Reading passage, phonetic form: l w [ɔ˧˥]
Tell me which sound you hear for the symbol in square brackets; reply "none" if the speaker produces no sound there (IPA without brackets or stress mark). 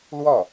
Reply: ɔ˥˩